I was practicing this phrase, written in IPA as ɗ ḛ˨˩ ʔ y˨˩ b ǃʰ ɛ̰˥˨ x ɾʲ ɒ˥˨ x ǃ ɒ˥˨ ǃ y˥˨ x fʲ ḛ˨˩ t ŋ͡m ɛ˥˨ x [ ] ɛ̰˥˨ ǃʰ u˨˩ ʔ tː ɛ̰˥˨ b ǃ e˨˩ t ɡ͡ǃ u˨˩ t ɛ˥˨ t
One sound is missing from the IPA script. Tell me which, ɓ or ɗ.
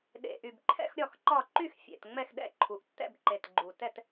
ɗ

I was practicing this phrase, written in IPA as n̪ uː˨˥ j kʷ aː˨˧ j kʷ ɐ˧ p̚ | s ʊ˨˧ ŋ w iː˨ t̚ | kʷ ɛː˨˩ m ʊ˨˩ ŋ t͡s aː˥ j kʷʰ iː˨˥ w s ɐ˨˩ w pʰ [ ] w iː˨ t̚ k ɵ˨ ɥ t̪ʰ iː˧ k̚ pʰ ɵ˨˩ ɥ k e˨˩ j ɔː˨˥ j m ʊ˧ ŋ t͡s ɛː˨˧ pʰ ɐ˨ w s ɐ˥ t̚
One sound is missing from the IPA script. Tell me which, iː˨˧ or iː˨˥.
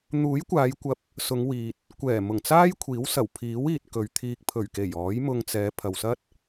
iː˨˥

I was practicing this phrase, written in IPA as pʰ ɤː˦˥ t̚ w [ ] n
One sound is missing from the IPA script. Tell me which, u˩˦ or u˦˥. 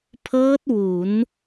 u˩˦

